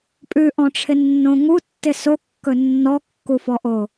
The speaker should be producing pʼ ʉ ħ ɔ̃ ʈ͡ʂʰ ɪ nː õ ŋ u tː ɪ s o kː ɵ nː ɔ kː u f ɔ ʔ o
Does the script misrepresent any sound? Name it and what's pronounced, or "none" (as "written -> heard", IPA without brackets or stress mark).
ħ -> ʔ